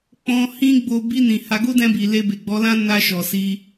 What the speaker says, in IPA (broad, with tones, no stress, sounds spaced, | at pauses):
k͡p ɔ̃˧ h ĩ˦ ɡ͡b o˧ b i˧ n ĩ˨ h a˧ ɡ o˦ d ɛ̃˧ b i˨ l e˧ b e˨ ɡ͡b ɔ˨˦ l ã˦ n a˧ ʃ ɔ˨ s i˧